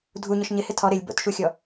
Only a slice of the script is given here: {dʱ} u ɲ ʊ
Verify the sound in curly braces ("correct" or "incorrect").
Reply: correct